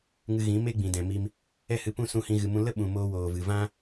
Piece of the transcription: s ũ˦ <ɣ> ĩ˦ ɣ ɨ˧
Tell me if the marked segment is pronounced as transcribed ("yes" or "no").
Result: no